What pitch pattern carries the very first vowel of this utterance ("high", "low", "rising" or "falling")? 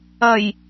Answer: low